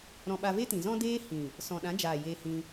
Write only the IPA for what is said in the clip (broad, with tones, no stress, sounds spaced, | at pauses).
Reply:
ɾ ɔ̃˧ ɓ a˧ v e˦ t ĩ˨ z ɔ̃˦ d eː˦ h ĩ˨ | s ɔ̃˨ ɗ ã˨˦ d͡ʒ aː˨ j e˧ h ĩ˧